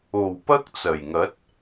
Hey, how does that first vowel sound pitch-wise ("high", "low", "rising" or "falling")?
low